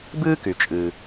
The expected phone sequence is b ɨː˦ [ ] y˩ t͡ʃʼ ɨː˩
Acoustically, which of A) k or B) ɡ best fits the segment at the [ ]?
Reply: A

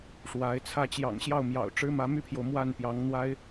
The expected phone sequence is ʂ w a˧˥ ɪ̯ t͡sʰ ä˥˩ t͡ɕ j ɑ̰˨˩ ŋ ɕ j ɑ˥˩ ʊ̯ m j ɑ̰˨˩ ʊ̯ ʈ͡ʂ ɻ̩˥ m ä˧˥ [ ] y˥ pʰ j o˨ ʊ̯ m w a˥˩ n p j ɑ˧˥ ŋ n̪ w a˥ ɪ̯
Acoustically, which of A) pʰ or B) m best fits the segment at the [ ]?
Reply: B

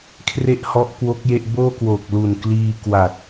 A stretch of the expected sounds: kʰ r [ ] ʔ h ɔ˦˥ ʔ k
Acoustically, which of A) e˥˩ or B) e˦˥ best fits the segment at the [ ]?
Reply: A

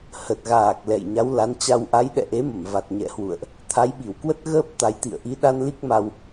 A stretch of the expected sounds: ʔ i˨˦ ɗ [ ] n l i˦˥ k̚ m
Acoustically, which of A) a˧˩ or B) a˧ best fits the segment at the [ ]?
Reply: B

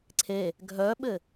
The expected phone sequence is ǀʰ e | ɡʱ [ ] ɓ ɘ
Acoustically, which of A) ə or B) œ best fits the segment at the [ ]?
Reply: B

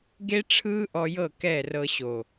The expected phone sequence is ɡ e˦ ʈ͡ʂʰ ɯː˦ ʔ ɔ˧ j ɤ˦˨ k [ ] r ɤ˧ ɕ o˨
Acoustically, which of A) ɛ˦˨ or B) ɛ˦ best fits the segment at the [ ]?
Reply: A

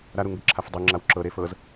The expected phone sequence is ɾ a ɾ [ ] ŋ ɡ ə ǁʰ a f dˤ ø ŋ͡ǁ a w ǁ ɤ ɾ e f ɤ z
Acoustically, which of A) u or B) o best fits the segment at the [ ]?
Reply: A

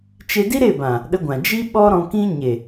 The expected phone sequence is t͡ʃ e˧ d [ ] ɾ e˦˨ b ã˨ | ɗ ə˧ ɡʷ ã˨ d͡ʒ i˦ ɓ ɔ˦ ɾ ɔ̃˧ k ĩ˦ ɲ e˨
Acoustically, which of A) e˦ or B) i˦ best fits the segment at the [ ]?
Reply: B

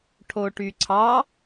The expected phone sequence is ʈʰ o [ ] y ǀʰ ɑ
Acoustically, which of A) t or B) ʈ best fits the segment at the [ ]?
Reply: B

